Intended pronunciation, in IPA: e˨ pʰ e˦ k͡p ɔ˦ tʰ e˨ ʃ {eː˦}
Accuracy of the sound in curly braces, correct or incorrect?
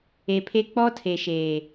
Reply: incorrect